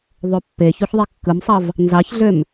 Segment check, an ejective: absent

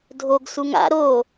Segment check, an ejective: absent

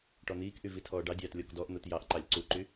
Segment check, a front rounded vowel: present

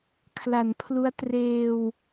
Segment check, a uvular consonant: absent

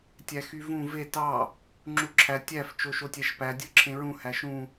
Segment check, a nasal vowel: present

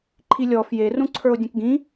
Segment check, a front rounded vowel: absent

